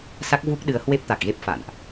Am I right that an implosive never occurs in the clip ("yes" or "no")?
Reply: no